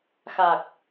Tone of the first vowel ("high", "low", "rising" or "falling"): low